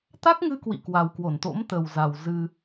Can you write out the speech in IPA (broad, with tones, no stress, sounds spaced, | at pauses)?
t̪ a˦˥ k̚ ŋ ɨ˧ k w ḭ˧˨ k w a˨˩ w k w o˧˩ n t̪ o̰˧˥ m t̪ ə˨˩ w z a˨˩ w z ɨ˧